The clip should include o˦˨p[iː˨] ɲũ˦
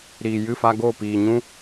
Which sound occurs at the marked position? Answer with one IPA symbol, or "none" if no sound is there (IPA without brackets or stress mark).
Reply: iː˨